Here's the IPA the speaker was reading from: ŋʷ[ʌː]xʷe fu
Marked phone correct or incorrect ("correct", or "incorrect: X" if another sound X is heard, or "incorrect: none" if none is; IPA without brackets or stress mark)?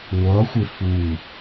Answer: correct